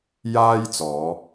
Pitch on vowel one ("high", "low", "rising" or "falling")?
high